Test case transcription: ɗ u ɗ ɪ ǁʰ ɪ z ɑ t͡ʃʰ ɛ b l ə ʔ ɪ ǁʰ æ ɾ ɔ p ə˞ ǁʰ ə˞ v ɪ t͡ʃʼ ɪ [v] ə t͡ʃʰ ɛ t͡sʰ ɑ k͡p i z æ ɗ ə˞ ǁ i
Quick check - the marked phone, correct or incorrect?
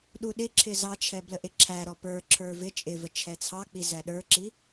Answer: correct